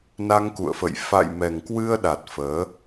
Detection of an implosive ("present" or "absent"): present